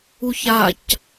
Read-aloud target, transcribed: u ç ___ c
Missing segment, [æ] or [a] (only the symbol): a